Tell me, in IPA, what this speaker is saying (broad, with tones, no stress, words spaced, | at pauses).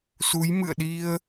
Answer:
su˨˦jmɨ̰˧˨ə̯ɗi˧ə̯